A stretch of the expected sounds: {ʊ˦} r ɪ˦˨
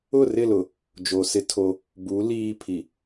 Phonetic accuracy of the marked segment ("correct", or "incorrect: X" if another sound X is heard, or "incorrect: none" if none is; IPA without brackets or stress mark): incorrect: ʊ˦˨